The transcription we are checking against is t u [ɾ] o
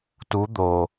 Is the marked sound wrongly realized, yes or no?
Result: yes